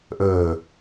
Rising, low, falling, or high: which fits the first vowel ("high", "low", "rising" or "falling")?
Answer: low